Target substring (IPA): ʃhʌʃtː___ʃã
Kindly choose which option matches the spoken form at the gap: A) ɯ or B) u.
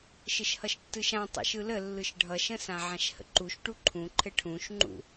A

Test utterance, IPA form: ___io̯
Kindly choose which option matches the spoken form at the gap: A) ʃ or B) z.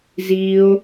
B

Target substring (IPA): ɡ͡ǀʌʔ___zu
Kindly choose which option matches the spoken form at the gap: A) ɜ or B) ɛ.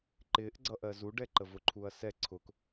A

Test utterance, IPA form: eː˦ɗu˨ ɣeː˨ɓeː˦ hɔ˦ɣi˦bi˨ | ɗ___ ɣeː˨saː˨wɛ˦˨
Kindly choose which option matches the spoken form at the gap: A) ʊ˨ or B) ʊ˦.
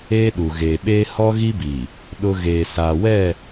B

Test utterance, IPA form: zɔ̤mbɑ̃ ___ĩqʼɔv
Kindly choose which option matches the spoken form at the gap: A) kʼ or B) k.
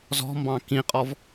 B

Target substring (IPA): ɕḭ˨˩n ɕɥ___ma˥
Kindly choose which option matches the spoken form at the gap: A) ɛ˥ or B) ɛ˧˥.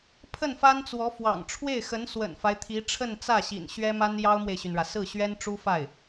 A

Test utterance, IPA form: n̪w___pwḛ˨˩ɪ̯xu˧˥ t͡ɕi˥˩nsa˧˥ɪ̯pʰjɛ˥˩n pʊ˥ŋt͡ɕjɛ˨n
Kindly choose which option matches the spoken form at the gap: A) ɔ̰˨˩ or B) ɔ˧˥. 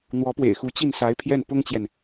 B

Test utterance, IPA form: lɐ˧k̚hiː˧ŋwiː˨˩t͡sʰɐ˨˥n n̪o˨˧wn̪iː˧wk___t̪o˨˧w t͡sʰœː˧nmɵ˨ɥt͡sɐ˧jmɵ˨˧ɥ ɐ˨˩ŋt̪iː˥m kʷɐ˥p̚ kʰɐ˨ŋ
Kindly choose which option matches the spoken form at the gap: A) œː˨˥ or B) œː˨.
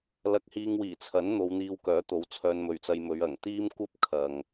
A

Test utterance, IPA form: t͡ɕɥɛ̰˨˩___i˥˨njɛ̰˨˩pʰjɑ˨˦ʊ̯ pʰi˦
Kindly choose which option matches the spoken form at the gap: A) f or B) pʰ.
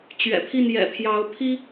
B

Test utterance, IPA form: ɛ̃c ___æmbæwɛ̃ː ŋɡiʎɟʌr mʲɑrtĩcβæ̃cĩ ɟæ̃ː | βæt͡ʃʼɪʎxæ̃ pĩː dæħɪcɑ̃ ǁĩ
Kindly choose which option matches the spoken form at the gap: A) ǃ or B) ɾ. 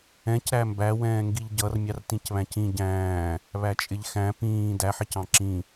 B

